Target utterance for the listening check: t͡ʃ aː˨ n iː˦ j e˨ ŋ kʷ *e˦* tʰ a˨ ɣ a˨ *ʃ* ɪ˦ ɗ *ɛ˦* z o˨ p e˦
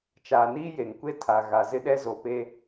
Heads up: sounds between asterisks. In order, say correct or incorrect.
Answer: correct, incorrect: z, correct

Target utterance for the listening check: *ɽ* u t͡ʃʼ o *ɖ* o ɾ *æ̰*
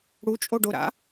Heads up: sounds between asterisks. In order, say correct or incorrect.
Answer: correct, correct, incorrect: a̰

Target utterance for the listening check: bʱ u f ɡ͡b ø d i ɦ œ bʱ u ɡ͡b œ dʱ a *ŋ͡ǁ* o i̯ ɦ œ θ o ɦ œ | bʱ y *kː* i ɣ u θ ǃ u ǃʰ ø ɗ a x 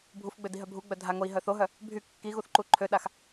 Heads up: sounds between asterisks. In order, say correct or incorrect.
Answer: incorrect: ŋ, correct

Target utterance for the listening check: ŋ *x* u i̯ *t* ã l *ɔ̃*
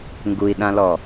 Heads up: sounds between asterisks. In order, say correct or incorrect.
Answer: incorrect: ɡ, incorrect: ɗ, incorrect: ɔ

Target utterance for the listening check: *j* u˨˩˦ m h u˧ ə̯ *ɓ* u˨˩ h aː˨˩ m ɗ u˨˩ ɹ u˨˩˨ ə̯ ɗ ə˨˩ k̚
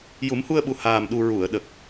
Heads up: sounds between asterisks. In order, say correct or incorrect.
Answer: correct, correct

